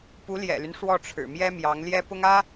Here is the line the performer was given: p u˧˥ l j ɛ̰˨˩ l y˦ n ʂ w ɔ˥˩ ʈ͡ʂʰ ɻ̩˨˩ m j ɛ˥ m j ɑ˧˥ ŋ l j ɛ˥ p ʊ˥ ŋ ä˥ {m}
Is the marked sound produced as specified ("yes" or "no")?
no